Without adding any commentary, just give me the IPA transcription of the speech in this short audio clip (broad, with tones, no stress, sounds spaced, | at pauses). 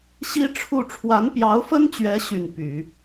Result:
ɕ i˥ ʈ͡ʂʰ u˥˩ ʈ͡ʂʰ w a˧˥ n p j ɑ˧˥ ʊ̯ f ə˥ n t͡ɕ ɥ ɛ˧˥ ɕ y˥˩ n p y˨˩˦